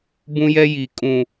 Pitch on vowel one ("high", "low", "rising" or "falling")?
high